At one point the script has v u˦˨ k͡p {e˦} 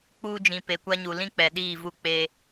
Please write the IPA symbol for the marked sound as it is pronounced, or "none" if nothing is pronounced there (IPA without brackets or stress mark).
e˦